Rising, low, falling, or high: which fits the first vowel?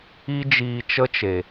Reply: high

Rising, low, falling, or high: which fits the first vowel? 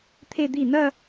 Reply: falling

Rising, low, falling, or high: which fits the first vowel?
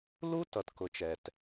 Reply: high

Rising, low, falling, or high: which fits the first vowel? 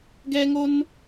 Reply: high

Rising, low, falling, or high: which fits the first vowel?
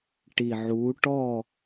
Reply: low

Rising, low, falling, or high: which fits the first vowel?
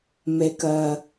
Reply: low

